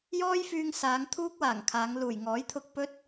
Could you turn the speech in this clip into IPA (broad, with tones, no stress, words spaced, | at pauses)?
jɔː˥jfyː˧ŋsaː˨˧ŋ t̪ʰuː˥k̚waː˨˩ŋkʰaː˨˧ŋ luː˨˩jŋɔː˨˥jt̪ʰʊ˧k̚ pɵ˥t̚